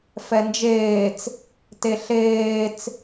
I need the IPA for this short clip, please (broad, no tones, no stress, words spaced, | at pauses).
fɛnd͡ʒeːt͡s | teɬeːt͡s